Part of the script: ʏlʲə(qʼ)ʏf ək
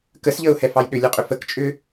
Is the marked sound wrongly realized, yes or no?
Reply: no